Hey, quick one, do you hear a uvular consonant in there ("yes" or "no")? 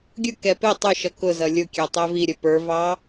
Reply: no